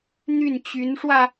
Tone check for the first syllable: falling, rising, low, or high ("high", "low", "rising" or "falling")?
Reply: falling